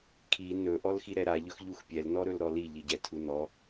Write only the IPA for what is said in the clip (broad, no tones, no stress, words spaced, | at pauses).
kʰi nɵ ʔɔlxiɾɛɾa ʎɵxʎuxpʲɛl nɔɾɵlɾɔli ʎiɟɛtʰunɔ